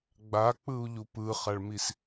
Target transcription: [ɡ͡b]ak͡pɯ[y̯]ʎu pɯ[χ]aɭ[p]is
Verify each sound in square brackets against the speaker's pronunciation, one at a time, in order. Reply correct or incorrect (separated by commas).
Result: correct, incorrect, correct, incorrect